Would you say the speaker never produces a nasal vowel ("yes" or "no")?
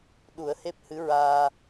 yes